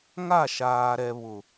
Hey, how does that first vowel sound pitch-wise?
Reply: falling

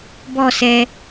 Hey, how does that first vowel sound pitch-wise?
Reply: falling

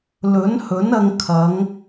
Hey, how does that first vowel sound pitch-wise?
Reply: rising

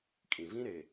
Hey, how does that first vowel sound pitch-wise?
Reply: low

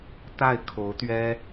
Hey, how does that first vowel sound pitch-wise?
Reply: falling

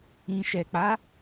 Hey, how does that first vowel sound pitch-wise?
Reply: low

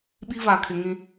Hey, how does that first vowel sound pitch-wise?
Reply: high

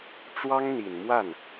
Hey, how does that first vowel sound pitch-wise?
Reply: high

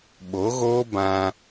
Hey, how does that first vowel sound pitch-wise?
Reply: rising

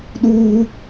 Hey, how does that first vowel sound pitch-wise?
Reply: high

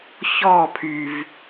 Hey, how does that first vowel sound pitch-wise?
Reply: falling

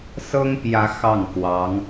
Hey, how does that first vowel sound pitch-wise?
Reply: high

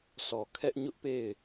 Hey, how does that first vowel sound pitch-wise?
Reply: low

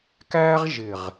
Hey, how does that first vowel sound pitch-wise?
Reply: high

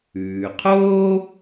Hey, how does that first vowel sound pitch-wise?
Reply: low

